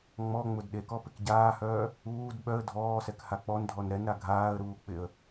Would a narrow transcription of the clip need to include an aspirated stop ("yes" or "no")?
no